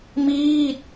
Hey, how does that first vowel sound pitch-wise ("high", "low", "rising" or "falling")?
falling